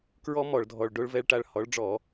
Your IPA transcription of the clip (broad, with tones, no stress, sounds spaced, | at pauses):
k ɹ ɔ˥ m ɔ˧˩˧ ɭ dʱ ɔ˩˧˩ ɭ ɖ o˨˦ ɭ v ɛ˨˦ ɭ ʈ a˩˧˩ ɭ h ɔ˨˦ ɭ ɖ͡ʐ ɔ˧˩˧